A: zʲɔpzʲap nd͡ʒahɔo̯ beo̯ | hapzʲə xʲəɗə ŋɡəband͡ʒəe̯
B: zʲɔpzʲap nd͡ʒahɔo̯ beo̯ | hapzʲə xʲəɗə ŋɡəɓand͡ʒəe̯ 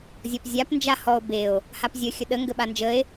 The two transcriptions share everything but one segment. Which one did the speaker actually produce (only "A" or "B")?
B